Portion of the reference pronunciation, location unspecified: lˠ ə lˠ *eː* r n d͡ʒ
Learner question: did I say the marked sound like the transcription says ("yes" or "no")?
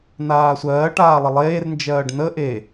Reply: yes